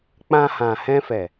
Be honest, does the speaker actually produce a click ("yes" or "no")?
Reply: no